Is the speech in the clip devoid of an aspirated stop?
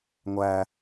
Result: yes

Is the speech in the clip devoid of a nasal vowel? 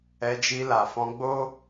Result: no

